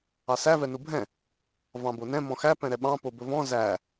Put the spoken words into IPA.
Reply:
ɑ s æ v ɛ n u bʱ ɛ̃ | v ɑ̃ b o n ɛ̃ m ɔ̃ x æ p ɛ̃ ɾ ɛ ɓ ɑ̃ p o b ɵ v ɔ̃ z æ

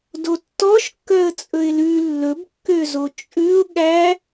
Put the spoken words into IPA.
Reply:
d o tː ɔ ʃ kː œ ə̯ t͡sʼ ɵ ɪ̯ l ʉ lː ɵ b kː ø z o t͡ʃʼ ʉ ʊ̯ ɠ æ

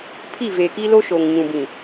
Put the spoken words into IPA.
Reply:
pʰ i˦˨ v e˨ k i˦ l o˦ ʃ o˨ ŋ ɲ ũ˨ b ĩ˨

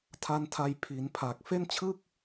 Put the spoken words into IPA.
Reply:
tʰ a˦˥ n tʰ a˧ j pʰ i˩˦ n pʰ a˨˩ k̚ f e˥˩ n t͡ɕʰ ɯ˥˩ k̚

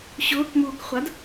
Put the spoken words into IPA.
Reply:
ɕ ʊː k m uː k χʷ a d

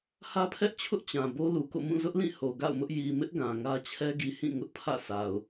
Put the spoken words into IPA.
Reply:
h ä˦ pʰ ɛ˦ ʔ t͡ɕʰ ʊ˦ ʔ t͡ɕ ã˨ b o˦ l u˨ k o̰˦˨ m ũ˦˨ z ʊ˦ ʔ l ĩ˦˨ h o˨ ɡ a̰˦˨ ʊ̯ m ʊ˦ ʔ j i˨ m ɪ˦ ʔ ɡ ã˨ ŋ ä˦ t͡ɕʰ ɛ˦ ɡ i˨ h ĩ˦˨ ŋ ʊ˦ ʔ pʰ ä̰˦˨ s a˨ ʊ̯

